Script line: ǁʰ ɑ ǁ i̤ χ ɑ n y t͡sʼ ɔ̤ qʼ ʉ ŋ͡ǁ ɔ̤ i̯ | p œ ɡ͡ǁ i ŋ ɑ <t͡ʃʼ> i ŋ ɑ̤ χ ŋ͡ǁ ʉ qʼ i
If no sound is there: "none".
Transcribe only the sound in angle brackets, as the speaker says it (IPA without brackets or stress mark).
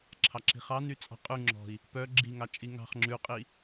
t͡ʃʼ